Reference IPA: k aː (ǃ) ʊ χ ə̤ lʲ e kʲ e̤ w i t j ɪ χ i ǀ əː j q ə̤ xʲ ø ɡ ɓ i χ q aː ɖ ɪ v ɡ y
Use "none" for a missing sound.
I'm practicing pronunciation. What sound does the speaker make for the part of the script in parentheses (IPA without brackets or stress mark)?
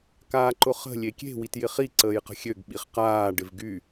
ǃ